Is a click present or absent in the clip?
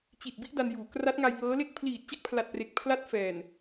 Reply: absent